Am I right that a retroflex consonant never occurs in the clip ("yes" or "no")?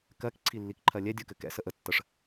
no